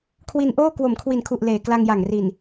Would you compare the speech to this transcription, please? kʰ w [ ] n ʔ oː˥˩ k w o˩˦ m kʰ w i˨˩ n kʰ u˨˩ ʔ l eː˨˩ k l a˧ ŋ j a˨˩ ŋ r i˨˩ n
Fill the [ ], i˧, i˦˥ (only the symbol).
i˧